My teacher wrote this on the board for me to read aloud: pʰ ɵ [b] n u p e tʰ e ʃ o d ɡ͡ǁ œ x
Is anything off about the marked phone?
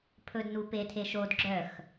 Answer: yes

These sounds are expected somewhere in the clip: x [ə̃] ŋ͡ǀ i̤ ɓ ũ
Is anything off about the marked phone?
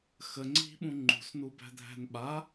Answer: yes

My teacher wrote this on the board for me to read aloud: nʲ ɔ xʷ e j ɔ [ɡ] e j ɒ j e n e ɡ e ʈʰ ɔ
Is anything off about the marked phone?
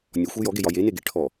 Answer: no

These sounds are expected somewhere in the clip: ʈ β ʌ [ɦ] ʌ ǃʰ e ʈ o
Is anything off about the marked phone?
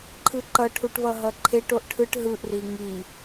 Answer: no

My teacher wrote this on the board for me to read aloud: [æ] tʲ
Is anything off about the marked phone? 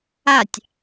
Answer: yes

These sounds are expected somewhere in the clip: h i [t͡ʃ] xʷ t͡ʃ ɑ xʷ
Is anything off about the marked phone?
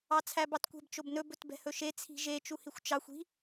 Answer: yes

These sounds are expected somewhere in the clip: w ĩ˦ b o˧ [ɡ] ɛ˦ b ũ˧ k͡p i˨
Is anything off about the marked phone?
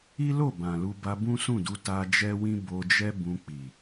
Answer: yes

